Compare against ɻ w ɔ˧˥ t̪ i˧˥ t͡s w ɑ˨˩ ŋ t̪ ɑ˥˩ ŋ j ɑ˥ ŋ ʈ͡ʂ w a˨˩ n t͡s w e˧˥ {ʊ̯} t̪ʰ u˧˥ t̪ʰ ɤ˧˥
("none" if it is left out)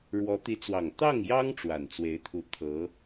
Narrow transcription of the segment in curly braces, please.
ɪ̯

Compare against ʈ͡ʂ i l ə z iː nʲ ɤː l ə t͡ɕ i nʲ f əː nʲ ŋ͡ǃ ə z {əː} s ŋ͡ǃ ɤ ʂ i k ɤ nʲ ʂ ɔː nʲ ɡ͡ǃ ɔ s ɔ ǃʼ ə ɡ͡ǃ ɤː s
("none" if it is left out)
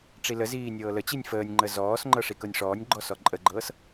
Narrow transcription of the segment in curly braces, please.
ɔː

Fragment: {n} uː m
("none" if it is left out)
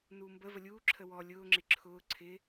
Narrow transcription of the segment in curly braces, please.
n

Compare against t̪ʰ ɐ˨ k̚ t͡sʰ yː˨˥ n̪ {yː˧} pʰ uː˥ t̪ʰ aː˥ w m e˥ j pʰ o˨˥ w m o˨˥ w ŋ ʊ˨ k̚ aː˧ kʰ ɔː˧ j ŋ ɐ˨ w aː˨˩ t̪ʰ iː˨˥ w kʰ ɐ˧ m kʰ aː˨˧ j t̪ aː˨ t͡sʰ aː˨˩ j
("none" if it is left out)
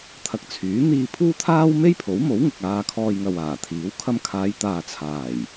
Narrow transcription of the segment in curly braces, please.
iː˧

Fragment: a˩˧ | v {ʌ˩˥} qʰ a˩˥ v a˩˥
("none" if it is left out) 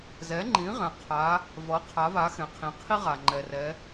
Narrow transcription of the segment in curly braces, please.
ʌ˩˥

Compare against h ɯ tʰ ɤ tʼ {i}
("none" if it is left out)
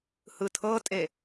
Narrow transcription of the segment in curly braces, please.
e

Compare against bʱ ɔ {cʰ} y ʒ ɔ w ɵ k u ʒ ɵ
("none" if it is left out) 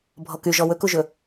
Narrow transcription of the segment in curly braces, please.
k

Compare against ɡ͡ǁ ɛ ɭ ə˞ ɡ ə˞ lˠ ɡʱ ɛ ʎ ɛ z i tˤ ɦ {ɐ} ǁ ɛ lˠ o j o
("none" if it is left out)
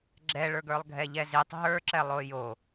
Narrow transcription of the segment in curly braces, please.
ə˞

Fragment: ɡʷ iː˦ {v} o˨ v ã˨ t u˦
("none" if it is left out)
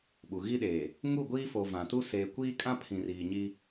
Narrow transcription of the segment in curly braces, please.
f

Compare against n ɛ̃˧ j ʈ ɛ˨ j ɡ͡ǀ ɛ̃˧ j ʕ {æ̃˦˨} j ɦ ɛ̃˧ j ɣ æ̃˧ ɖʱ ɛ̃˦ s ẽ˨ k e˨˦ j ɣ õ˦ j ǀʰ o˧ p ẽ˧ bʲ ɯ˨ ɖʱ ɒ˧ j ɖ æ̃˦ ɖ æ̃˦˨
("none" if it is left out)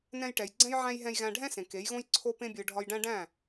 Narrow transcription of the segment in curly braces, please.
æ̃˧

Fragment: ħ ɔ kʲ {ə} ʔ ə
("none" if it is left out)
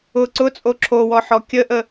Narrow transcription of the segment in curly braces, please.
ə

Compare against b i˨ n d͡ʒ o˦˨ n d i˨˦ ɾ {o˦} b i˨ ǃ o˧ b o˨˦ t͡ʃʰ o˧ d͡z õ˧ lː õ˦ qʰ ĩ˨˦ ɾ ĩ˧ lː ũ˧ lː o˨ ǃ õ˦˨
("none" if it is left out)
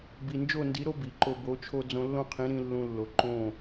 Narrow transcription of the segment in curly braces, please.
o˦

